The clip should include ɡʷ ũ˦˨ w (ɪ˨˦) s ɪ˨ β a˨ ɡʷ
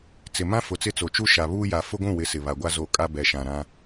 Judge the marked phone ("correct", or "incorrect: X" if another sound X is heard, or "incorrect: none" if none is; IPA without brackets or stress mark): correct